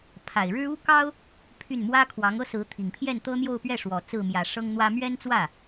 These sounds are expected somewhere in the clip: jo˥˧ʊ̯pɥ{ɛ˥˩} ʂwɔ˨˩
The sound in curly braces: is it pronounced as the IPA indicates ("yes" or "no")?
yes